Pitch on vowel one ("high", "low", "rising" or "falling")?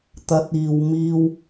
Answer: rising